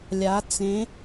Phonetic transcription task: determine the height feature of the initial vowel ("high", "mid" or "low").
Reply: low